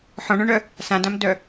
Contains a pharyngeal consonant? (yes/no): yes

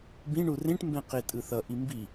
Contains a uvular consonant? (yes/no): yes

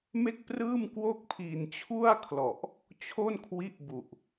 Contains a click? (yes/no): no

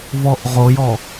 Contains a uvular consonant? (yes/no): yes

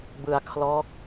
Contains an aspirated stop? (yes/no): yes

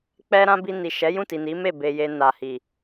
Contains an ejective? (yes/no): no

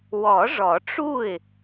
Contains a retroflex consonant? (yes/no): yes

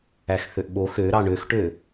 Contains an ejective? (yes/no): no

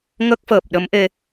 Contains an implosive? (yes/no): yes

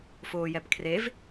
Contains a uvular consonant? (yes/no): no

